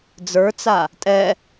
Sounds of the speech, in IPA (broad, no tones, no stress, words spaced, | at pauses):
d͡zə˞t͡sa | tʼɛ